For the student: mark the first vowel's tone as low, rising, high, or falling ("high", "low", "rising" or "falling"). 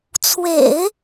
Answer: low